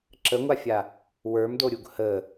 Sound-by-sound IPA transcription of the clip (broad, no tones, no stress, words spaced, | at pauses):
ǁəŋʷafʲa | wə˞mdoɾʲuɡ hə